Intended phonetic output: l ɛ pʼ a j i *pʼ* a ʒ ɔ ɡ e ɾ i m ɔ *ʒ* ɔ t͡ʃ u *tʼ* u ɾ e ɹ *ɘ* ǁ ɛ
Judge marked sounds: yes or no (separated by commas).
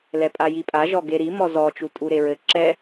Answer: yes, no, yes, yes